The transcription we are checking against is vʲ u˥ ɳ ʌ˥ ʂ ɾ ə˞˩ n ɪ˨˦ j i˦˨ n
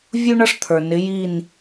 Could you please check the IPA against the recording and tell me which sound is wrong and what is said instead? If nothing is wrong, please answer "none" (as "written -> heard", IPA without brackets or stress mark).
ɾ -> t̪ʰ